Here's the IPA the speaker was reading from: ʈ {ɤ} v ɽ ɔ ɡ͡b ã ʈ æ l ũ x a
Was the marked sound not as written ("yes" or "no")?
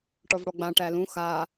yes